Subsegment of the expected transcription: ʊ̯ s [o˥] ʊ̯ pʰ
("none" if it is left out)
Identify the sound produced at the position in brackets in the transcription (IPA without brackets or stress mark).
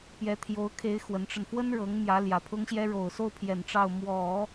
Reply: o˥˩